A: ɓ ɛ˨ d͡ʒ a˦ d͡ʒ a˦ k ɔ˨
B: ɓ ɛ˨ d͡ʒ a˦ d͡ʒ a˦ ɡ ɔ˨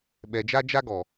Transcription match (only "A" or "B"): B